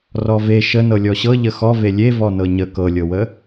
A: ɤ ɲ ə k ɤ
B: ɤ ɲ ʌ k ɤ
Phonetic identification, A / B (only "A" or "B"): A